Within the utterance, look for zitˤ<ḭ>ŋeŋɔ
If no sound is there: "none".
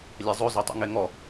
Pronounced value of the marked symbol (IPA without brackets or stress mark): ḭ